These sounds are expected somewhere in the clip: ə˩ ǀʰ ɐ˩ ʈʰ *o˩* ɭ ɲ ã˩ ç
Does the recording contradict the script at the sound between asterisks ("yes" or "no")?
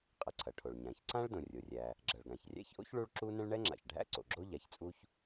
no